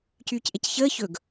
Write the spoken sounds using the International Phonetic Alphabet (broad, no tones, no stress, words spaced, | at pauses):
cyːcʔecçəː çɵɡ